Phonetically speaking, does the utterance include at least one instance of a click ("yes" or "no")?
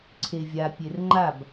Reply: yes